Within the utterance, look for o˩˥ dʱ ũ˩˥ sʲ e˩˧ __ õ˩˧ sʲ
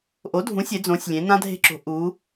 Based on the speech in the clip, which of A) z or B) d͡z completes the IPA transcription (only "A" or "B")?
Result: B